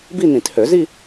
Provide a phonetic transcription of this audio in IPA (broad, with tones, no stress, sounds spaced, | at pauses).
b i˥˧ n ĩ˨˩˦ t h ø˨˩˦ z i˥˧